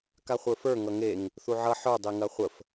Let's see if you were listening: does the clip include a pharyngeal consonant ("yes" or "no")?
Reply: yes